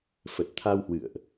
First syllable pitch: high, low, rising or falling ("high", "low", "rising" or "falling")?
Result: low